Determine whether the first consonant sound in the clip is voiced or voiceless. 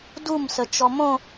voiced